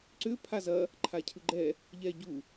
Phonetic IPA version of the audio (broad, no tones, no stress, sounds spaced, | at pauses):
ǀ ʏ pʰ a z ɐ | ǃʰ a cʰ ɯ ɡ͡ǃ ɛ | ʎ ɛ ɟ u